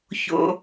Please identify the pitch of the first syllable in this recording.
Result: low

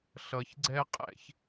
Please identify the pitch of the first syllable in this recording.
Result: low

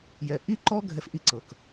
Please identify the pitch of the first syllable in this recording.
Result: low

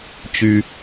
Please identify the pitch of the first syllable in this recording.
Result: high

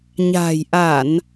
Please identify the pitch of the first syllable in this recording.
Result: low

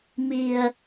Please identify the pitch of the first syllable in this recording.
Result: low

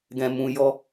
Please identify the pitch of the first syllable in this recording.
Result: low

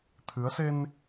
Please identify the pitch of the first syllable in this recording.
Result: rising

